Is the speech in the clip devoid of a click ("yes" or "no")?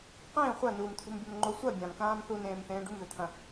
no